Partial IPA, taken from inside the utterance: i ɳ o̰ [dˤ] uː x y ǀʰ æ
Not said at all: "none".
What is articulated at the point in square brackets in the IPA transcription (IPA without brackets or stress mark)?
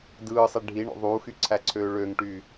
ðˤ